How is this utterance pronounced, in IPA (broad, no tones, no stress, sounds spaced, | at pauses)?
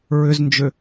ɹ ʏ z n d͡ʒ ø